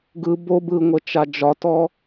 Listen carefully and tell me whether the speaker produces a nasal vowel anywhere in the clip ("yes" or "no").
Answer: no